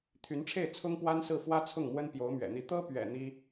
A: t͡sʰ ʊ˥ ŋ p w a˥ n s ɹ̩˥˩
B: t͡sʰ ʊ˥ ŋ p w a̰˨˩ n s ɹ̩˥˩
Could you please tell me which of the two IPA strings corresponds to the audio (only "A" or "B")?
A